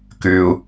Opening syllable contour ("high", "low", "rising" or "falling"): low